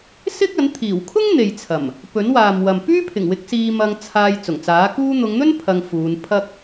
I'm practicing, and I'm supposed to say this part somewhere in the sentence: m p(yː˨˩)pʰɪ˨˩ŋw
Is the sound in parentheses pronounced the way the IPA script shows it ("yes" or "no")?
no